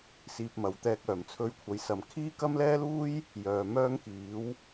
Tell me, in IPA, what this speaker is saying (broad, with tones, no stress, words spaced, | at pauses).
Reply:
siː˧p̚mɐ˨˥wt̪ɛː˧k̚ œː˨˩mt͡sʰɵ˧ɥkʷʰɐ˨˥jsɐ˨m kʰiː˥kɐ˥mlɛː˥luː˥j | jœː˨mœː˥ŋkiː˨˥w